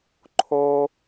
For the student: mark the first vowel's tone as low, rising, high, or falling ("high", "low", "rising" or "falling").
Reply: low